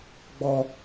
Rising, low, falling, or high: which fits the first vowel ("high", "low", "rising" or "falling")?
high